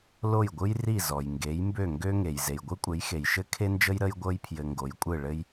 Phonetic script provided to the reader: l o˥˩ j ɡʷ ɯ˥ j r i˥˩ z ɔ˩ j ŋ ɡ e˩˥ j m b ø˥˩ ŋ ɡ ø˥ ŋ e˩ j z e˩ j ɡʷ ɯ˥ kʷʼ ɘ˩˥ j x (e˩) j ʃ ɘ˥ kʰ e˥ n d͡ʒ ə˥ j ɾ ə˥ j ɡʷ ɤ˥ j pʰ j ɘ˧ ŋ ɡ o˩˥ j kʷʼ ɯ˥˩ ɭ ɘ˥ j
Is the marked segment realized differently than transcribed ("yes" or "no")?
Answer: no